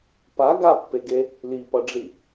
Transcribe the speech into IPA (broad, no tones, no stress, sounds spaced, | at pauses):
p a ɡ a pː e ɡ e | l i p ʌ ɖ͡ʐ i